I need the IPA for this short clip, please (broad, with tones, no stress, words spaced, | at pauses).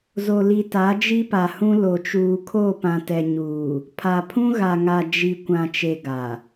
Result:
zo˨li˨ta˨˦ d͡ʒi˦pa˨hũ˦ lo˨t͡ʃuː˨kʰo˦˨ pã˨tɛ˨ɲuː˨ | pʰa˨pʰũ˦ɣa˨ ŋa˨d͡ʒi˨ kʷã˨t͡ʃe˨ ɡa˨